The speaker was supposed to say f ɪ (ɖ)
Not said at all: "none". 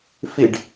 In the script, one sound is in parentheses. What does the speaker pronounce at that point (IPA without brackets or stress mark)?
ɖ